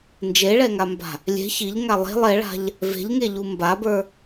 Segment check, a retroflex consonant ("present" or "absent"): present